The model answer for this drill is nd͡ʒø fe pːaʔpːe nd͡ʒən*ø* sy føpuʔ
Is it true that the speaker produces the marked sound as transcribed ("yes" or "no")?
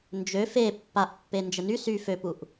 no